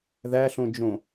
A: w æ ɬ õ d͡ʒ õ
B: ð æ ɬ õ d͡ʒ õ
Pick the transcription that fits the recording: B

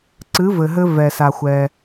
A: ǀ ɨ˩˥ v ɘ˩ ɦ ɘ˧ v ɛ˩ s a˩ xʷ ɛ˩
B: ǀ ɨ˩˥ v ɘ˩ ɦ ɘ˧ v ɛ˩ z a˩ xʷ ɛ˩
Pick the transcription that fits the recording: A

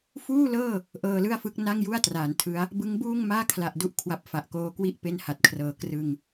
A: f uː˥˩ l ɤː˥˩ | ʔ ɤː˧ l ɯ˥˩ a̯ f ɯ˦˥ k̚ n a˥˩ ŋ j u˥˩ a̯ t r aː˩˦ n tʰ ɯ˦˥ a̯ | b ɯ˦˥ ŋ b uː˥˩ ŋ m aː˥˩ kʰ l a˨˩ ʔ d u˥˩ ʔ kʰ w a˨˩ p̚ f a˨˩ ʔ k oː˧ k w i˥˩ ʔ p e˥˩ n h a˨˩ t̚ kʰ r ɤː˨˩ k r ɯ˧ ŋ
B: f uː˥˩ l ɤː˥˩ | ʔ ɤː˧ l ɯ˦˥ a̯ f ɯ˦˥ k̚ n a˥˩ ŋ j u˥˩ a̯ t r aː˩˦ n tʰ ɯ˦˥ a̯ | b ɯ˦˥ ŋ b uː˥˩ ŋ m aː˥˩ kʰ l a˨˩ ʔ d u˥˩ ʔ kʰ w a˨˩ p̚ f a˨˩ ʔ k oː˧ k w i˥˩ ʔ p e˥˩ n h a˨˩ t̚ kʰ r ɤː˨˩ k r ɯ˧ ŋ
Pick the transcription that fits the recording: A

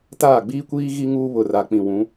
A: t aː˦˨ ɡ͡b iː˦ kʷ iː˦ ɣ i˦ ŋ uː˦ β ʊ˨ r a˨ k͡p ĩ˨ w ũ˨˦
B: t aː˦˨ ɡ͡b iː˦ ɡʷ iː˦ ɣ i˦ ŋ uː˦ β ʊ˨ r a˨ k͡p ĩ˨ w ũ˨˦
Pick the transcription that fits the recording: A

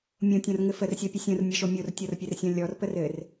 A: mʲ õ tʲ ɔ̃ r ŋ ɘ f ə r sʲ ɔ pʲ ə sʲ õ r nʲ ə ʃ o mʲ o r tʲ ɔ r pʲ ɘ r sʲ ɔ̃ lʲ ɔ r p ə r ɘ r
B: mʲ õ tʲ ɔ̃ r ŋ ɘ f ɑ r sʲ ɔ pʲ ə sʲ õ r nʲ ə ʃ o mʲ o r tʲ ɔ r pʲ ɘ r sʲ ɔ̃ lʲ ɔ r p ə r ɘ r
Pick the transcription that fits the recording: A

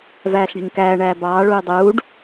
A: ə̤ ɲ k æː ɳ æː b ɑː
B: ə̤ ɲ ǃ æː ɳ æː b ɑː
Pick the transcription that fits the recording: A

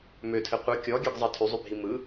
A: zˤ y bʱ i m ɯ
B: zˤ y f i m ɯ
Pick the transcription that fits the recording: A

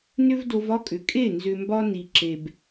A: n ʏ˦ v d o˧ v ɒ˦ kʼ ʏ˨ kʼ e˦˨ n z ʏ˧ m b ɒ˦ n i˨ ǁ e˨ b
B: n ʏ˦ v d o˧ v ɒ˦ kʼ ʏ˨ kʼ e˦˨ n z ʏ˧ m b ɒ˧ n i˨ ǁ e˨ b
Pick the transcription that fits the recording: A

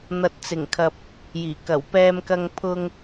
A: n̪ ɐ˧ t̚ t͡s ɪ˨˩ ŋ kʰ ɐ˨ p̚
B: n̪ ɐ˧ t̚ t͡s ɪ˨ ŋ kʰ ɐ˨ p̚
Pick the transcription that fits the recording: A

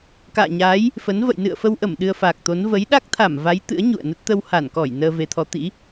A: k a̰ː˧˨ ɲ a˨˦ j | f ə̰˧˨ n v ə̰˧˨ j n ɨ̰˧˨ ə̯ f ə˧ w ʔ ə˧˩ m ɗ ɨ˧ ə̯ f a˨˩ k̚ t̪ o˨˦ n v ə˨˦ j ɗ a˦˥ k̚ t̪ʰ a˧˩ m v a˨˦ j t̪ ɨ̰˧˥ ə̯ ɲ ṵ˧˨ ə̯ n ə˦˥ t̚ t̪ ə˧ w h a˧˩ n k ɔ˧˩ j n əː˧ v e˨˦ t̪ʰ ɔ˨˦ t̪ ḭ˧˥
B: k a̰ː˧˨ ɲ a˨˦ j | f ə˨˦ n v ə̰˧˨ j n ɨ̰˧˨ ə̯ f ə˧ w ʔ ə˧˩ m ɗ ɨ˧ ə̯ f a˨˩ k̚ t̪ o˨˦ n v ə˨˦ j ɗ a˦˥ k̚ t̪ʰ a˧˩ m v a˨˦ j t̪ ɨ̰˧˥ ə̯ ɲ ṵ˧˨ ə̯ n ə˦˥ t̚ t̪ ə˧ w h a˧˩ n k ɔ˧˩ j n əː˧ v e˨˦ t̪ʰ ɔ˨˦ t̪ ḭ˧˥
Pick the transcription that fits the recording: B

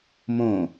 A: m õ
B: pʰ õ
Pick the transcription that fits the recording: A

